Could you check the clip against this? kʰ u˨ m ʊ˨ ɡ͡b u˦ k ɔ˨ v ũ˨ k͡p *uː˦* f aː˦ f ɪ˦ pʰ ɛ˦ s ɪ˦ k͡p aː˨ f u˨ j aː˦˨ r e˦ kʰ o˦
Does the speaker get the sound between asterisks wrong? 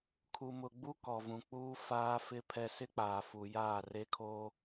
no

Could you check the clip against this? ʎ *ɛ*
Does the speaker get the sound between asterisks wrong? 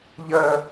yes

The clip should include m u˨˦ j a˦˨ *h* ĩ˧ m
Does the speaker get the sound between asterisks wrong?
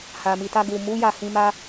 no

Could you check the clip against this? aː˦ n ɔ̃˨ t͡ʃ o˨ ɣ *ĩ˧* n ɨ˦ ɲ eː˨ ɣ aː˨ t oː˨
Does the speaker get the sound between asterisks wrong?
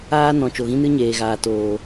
yes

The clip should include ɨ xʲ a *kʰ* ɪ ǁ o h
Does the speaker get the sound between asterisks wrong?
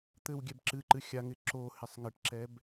yes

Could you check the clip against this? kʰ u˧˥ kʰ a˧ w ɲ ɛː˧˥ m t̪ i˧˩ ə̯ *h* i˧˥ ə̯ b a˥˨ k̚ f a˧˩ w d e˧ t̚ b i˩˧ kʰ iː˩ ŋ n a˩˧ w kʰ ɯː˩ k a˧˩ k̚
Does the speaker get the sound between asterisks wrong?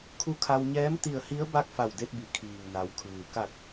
no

